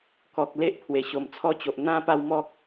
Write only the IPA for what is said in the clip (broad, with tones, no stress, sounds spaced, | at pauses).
k ɔ˨ k̚ l e˦ ʔ pʰ w e˨˩ ɕ o˨˩ m t͡sʰ ɔ˦ t͡ɕ o˨ ʔ n̪ ã˥˧ p a˥˧ w m ɔ˦ k̚